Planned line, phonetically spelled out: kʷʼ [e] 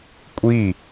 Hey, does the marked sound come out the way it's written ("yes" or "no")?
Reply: no